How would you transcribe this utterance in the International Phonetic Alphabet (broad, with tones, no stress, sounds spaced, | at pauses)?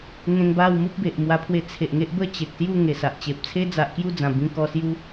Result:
ŋ ẽ˧ ŋ b a˥˧ w m u˦ p̚ b e˨ ʔ m w a˧ pʰ w e˧ t͡sʰ e˨ ʔ ŋ e˦ ʔ b ə˥˧ t͡ɕ e˨ k̚ s j u˥˧ ŋ e˨˩ s a˨ ʔ t͡ɕ e˨ p̚ t͡sʰ e˦ d͡z a˨ ʔ k j u˥˧ d͡z ã˨˩ b ĩ˧ k ɔ˧ s j u˦